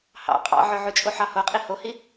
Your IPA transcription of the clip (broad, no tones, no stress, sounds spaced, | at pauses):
h ɑ̰ qʼ ɑ̰ ʕ œ ʕ ʉ t͡ʃʼ o ħ ɑ h o qʼ i h o h i